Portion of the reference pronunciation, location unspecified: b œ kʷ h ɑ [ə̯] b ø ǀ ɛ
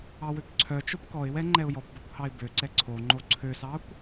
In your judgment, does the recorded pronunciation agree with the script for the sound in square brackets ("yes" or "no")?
no